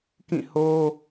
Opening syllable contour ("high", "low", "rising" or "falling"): falling